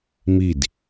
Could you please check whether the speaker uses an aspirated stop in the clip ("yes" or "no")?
no